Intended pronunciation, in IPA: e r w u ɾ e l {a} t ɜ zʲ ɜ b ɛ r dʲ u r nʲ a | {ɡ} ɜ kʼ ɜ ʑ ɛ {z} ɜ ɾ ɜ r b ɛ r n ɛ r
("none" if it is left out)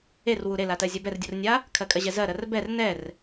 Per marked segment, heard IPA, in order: a, kʰ, z

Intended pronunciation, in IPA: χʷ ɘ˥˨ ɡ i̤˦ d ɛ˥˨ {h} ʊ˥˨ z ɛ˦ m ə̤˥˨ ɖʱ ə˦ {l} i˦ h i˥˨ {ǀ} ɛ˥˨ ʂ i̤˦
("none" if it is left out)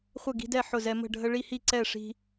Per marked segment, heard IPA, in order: ħ, ɭ, ǀ

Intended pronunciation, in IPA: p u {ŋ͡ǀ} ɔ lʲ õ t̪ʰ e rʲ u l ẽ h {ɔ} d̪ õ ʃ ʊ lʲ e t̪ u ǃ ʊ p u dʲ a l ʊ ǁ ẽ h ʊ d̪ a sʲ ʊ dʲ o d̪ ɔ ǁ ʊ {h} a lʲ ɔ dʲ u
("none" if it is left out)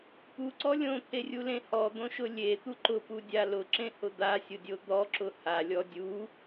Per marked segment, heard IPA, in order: ǀ, ɔ, h

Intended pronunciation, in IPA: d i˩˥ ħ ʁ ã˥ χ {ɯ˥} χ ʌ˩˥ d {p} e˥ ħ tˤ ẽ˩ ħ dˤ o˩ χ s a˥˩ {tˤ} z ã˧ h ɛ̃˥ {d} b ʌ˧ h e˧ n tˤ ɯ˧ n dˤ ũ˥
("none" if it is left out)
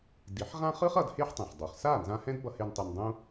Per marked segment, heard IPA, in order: ɯ˥, h, n, d

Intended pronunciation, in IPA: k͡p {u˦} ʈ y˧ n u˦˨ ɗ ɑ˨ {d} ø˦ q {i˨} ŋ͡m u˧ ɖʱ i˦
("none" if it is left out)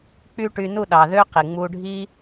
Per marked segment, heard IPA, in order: y˦, ð, i˨

